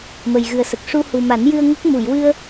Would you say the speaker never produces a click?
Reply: yes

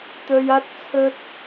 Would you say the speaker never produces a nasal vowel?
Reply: yes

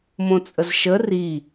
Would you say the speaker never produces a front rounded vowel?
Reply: yes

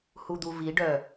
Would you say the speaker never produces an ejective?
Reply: yes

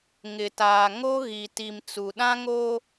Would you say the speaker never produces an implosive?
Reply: no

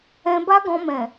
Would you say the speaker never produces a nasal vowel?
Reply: no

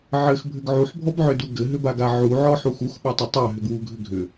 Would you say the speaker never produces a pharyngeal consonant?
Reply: no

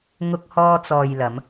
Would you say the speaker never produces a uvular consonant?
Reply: yes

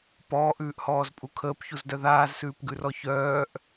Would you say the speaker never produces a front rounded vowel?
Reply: no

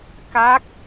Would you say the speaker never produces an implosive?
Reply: yes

